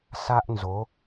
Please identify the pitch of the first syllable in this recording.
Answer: high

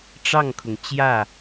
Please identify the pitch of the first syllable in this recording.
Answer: falling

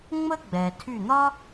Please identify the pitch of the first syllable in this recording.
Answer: high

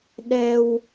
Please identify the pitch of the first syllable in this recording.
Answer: high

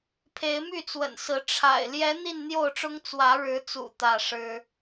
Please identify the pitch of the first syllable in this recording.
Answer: rising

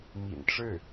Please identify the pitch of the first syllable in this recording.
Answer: low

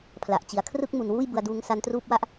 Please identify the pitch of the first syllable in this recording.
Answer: low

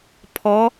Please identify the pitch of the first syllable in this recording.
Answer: rising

